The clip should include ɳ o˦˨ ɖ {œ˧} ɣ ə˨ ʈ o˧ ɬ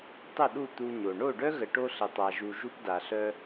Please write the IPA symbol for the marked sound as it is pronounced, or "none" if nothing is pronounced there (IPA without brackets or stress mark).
œ˦